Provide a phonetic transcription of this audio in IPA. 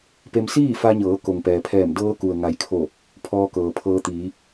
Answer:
p e˧ m s iː˥˨ f a˧ ɲ ɤː˩˧ k o˩ ŋ p ɛː˩ pʰ ɛː˧˩ m d ɤː˧ k u˩ ə̯ ŋ a˩˧ j kʰ o˧˩ | pʰ ɔː˧ k ɤː˩ pʰ ɤː˧ t̪ iː˩˧

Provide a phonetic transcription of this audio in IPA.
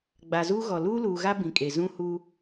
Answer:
ɡ͡b a˨ z uː˦ ɣ ɔ˨ l uː˦ l uː˨ ɣ a˦ b ĩ˨ kʼ e˨ z ũ˦ h uː˦

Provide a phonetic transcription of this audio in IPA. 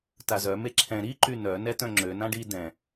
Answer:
t a z œ m e ǁʰ ɛ̃ ɾ i ǃ y n œ n ɛ t œ̃ ŋ͡ǁ ø n ã ɖ i d ɛ̃

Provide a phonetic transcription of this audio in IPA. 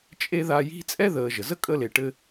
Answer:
t͡ʃʼ e˥ ð a˦ j i̤˥ t͡sʼ ɛ˥ ð əː˨ ʒ ə˩ z ə˥ kʼ ə˦ l e˨ ʈ ɘ˦

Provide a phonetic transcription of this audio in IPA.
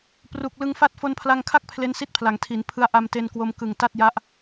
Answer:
p r u˨˩ k̚ l ɯ˧ ŋ f a˦˥ t̚ f o˧ n pʰ l a˧ ŋ kʰ a˥˩ k̚ pʰ l e˦˥ n s i˦˥ t̚ pʰ l a˩˦ ŋ tʰ i˩˦ n pʰ ɯ˧ a̯ ʔ a˧ m t e˧ n k w o˧ m k ɯ˨˩ ŋ t a˥˩ t̚ j a˦˥ ʔ

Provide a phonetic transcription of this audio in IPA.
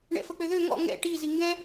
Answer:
ɳ ɛ̰ f ə k͡p ø ð ø ŋ ɔ̰ ŋ ɛ̰ ʈ i z i ŋ ɡ ɛ̃

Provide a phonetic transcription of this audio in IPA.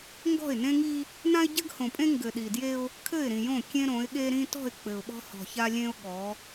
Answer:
ŋ ɡ ɔ̤˦˨ ɪ̯ n ẽ˦ ŋ i˦ | n ã˦ ɪ̯ ɟ ɘ˦ ɡ h õ˨ pʼ ẽ˦ ŋ ɡ ɘ˨ ɗ i˨ d j e˦ ʊ̯ | kʰ ɘ˦˨ ɪ̯ ɾ ĩ˨ j õ˦˨ kʲ ẽ˦ ɾ õ˨˦ ɪ̯ ɠ e˦ ɾ ĩ˦ t ɔ̤˦˨ ɪ̯ k͡p ɘ˨ ʊ̯ ɓ ɔ̤˦ h ɔ̤˨ ç a˦ lʲ ẽ˦ ʊ̯ ɠ ɔ˨˦

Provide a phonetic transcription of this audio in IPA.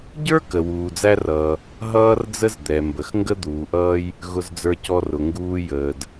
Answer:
ɟ ə˞˥ k ə˩ w uː˩ d͡z æ˥ r ʌː˩ | ɦ ʌː˥ r d͡z ə˥ z d̪ ɛ˩ m b ə˩ x ŋ ɡ ə˥ d̪ uː˩ ʔ ʌː˥ j | ɣ ʊ˧ z d͡z ə˞˧ c ɔ˧ r ʊ˩ ŋ ɡ uː˧ j əː˩ d

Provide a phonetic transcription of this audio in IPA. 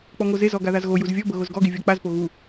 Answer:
k͡p ɔ ŋ o z e z ɔ ɡ a ð a z ɣ o j u z vʲ ɔ b ɤ ɣ o z ɡ ɔ ɡ i vʲ ɔ k͡p a z p o ɣ u

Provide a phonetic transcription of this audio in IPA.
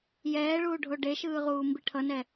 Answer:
j ɛː ɭ uː ɖʱ o ɖ e ʃ ɯː ʁ uː m b i ʈʰ ʌ n ɛ

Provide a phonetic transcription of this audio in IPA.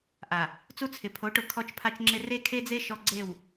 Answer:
ʔ a˨ | t͡s u˦ t͡sʰ ɪ˨ pʰ o˨˦ ʈ ʊ˨ kʰ ɔ˦ t͡ʃ pʰ a˦ t͡ʃ ŋ͡ǁ ɪ˦ r e˦ kʰ e˦ d͡z e˦ ʃ ɔ˦ ɡ͡ǀ e˦˨ w

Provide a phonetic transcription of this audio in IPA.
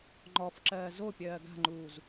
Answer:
ŋ͡ǃ ɔ f ǁ ɜː z o pʲ ɜː ɡ a̤ ŋ͡ǃ uː z

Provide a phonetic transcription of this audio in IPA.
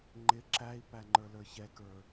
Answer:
ŋ͡ǃ ɪ ǁ æ i̯ p æ ŋ͡ǃ ə˞ l ə˞ ç ɛ k ə˞

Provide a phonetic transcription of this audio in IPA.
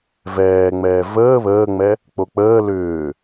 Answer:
v ɛː ŋ͡m ɛː v əː β əː ŋ͡m ɛ | k͡p o k͡p əː l ʏː

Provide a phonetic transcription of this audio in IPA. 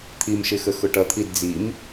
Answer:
t̪ʰ i m ʃ ɪ x ə x ʊ ʈ ʌ t̪ʰ i d d͡z i m

